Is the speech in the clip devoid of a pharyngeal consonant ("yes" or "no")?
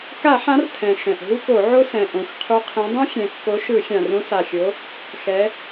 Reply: no